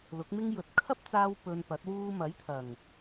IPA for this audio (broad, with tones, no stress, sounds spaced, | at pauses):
l ʊ˨˥ k̚ m ɪ˥ ŋ j ɵ˨ t̚ kʰ ɐ˥ p̚ t͡s aː˧ w p ɵ˧ n p ɐ˨˥ t̚ w uː˥ m ɐ˨˥ j t̪ʰ ɐ˨˩ ŋ